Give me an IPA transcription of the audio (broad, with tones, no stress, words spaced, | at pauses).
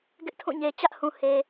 ɡɪ˦ʔtʰũ˦˨ɲe˨ t͡ɕä˦ʔhũ˨ he˨